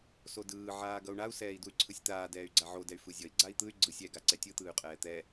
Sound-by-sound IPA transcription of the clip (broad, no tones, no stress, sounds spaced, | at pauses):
s o d ɯː ʕ aː ɡ ʌ u̯ ɳ a u̯ s ɛː i̯ d u y̯ ǀʰ ɯ sʲ t̪ aː d ɛː y̯ ɡ͡ǀ a ʕ o d ɛ y̯ f ɯ zʲ ʌ i̯ ɡ͡ǀ a i̯ t̪ ɯ y̯ ɡ͡ǀ ɯ sʲ ɛ ɡ a ǀ ɛ tʲ ɯ t̪ ɯː y̯ qʼ ɛː t̪ ɛ